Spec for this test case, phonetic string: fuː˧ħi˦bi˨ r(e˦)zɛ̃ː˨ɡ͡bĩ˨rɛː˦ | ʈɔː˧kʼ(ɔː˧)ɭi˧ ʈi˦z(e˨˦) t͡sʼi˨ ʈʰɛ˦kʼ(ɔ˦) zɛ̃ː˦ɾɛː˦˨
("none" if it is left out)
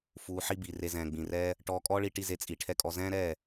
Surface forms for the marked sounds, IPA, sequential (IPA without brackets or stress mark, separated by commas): e˧, ɔː˦, e˧, ɔ˧